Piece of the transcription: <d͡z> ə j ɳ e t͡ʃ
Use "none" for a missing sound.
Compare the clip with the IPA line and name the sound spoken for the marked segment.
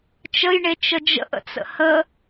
t͡ʃ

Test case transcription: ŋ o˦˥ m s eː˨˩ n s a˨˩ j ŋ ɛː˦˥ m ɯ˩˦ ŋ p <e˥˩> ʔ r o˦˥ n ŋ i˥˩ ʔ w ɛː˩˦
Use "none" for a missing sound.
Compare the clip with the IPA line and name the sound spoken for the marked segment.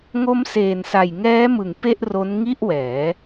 e˥˩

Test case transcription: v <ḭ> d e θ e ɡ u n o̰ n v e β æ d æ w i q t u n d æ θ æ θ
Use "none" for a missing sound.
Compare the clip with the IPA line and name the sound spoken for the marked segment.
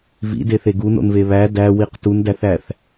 ḭ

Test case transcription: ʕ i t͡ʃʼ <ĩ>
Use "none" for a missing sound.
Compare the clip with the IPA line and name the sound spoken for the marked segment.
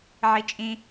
ĩ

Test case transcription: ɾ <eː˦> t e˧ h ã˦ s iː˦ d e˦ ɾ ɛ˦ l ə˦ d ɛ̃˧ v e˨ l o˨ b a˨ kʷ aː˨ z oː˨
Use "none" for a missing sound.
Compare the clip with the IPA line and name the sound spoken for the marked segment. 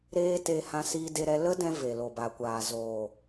eː˦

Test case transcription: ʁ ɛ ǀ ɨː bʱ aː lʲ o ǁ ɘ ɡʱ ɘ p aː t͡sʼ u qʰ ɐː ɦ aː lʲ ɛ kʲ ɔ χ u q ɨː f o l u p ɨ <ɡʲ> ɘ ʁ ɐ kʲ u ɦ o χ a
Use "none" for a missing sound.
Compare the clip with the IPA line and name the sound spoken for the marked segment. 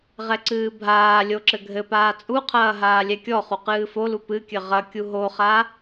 kʲ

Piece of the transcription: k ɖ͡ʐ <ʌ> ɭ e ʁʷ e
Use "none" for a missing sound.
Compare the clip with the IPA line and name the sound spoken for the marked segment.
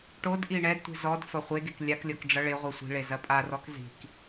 ʌ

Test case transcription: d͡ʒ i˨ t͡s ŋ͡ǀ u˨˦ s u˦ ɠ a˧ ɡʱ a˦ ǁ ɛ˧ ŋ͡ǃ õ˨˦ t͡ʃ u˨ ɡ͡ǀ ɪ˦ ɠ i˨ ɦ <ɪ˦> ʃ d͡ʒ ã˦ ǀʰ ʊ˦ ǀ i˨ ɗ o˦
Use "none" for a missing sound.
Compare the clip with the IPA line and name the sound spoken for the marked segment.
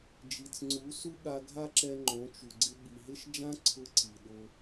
ɪ˦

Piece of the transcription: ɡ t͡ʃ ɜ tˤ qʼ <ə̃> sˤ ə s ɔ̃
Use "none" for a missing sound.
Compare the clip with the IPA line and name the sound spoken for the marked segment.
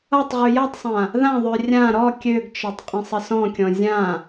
ə̃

